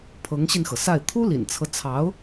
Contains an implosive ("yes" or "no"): no